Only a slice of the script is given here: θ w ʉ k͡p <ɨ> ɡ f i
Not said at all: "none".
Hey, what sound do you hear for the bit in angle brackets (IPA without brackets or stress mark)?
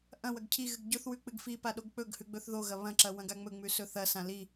ɨ